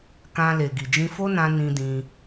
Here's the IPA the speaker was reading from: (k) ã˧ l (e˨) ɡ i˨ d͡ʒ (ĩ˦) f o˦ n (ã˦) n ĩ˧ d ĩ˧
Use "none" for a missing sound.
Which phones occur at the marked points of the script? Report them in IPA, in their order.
k, e˨, ĩ˧, ã˧

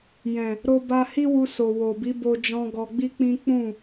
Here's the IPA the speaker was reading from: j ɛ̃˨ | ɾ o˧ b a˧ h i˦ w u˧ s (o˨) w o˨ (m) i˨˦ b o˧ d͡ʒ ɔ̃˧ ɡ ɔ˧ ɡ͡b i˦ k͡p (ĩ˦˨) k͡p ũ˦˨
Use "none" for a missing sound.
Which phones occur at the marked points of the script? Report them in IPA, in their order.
o˨, b, ĩ˦

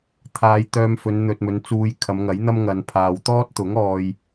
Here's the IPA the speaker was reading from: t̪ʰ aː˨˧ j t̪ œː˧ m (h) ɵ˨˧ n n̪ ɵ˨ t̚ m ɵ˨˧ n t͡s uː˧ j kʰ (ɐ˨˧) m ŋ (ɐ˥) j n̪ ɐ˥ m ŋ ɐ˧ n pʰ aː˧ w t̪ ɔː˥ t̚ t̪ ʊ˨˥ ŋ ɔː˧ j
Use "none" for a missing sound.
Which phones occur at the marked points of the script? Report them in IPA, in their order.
f, ɐ˨˧, ɐ˨˥

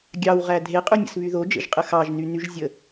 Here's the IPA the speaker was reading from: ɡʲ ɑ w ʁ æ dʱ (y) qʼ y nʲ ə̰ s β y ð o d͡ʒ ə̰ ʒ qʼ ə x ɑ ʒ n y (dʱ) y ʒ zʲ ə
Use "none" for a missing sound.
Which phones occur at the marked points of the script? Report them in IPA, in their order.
e, n

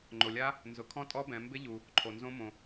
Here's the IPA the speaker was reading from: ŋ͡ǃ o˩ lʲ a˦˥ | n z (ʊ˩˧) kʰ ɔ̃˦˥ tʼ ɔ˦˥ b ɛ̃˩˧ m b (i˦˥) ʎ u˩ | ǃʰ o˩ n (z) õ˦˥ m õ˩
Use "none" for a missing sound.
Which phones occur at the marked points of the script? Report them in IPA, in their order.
ʊ˩˧, ɪ˦˥, z

